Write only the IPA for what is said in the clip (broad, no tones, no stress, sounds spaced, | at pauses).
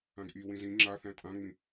ã ɡ ʔ i w ĩ z ĩ ŋ͡ǁ a θ æ̃ tʼ ã ŋ͡m ĩ